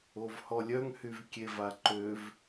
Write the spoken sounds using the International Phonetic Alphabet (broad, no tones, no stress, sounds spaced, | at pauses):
o v h ɔ lʲ œ ŋ h y v kʲ e v a ǃ ø v